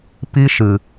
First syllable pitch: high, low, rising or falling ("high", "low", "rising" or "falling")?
high